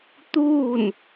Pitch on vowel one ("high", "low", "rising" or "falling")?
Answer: falling